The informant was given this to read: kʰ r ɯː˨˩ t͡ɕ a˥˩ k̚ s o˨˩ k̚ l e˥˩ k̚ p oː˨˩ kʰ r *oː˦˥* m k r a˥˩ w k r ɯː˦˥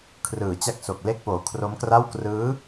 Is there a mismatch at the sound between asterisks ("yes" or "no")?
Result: yes